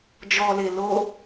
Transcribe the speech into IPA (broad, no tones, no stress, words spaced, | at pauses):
d͡ʒɔle lo